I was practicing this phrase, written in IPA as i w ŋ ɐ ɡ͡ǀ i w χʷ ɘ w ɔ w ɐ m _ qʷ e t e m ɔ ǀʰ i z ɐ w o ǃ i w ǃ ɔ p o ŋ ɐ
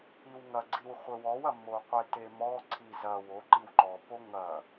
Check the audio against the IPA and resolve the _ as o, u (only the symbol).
o